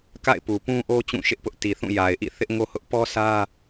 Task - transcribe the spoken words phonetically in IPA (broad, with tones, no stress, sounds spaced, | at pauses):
k a̰˦˨ ɪ̯ p u˨ p ũ˦ ʔ o˦ t͡ɕ ũ˦˨ ʃ ɪ˦ ʔ p ʊ˦ ʔ t i˨ θ ũ˦˨ j a˨ ɪ̯ ʔ ḭ˦˨ θ ɪ˦ ʔ ŋ o˦ h ʊ˦ ʔ p ɔ˦ s ä˦